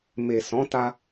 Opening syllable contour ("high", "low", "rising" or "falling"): low